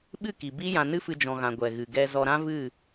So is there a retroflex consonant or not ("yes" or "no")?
no